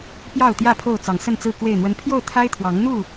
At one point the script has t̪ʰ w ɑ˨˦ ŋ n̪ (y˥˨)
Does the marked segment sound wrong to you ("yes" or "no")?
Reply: yes